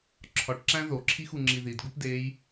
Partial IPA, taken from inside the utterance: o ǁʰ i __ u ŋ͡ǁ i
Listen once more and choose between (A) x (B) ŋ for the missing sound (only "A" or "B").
A